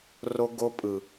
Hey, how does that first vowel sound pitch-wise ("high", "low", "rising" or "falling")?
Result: high